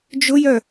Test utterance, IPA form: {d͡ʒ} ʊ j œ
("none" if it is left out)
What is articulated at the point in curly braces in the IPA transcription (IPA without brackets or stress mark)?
d͡ʒ